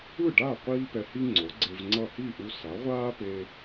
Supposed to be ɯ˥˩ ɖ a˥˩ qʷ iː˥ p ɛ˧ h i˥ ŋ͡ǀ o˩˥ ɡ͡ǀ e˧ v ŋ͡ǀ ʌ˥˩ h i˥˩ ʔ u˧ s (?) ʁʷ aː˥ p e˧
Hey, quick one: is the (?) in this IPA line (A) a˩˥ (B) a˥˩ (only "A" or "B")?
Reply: A